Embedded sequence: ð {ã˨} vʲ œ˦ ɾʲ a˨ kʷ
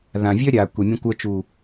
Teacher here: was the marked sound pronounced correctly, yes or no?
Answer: yes